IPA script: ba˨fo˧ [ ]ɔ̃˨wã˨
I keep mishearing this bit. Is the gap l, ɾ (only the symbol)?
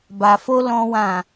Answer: l